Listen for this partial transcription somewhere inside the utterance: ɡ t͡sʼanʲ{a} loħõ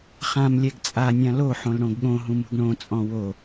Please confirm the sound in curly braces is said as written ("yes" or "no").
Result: no